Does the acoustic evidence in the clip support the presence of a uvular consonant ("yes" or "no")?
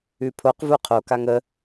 yes